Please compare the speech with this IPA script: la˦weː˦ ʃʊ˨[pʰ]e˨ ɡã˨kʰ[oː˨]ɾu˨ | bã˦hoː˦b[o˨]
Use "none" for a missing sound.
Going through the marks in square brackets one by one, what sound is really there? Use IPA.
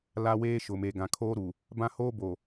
m, oː˦, o˨

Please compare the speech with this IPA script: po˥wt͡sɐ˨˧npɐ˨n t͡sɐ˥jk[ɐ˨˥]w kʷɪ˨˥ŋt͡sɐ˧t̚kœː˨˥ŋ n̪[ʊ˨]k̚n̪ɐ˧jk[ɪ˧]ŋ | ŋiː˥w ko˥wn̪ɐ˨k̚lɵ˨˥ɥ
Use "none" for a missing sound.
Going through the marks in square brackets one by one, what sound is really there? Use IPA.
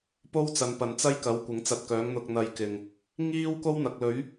ɐ˨˥, ʊ˧, ɪ˨˩

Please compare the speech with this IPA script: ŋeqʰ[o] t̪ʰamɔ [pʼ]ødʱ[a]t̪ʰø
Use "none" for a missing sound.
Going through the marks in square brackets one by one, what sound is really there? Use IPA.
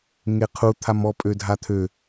u, pʼ, a

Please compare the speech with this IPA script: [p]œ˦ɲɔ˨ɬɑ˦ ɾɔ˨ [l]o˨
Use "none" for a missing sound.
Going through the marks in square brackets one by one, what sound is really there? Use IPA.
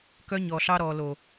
k, l

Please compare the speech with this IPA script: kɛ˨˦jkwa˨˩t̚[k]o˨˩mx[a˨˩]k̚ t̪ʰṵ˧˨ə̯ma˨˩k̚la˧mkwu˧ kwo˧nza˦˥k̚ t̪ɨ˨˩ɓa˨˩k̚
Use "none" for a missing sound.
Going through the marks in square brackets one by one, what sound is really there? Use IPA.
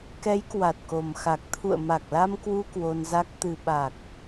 k, a˨˩

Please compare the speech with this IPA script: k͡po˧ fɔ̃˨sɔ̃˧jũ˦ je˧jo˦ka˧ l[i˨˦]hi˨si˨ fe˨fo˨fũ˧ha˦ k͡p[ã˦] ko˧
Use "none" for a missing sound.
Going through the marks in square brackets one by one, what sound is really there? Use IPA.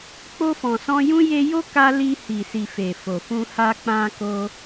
i˧, ã˧

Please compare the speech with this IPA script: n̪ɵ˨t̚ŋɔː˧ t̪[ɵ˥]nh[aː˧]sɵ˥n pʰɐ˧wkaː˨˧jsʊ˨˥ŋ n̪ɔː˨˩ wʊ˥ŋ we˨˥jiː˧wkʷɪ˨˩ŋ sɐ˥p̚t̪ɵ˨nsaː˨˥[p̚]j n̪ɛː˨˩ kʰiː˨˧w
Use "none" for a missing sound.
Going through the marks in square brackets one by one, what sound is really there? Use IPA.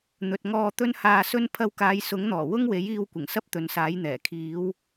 ɵ˥, aː˧, none

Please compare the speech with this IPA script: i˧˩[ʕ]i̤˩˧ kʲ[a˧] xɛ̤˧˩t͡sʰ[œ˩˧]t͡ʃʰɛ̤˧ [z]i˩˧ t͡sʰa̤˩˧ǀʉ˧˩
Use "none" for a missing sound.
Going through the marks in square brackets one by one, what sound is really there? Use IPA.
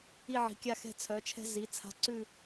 ʕ, a˧, œ˩˧, z

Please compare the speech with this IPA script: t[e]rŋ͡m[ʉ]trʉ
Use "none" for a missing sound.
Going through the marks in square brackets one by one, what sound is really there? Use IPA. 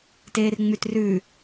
eː, ʉ

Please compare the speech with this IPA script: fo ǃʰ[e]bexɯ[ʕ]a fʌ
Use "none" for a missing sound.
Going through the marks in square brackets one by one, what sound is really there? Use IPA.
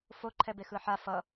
ɛ, ħ

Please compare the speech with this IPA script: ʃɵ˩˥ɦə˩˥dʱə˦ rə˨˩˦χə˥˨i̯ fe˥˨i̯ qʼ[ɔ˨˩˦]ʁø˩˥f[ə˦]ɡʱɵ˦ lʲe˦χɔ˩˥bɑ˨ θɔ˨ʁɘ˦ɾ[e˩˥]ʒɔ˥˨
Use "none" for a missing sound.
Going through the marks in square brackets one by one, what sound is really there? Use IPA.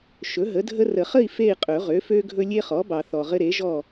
ɵ˨˩˦, ø˦, e˩˥

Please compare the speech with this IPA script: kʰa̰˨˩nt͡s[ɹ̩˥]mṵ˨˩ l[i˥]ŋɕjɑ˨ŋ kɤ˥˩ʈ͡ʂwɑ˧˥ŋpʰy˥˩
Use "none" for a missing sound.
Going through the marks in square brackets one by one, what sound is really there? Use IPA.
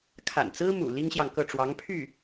ɹ̩˥, i˥

